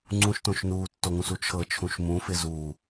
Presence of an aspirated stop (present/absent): present